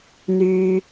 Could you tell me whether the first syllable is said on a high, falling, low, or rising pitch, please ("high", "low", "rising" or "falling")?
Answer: high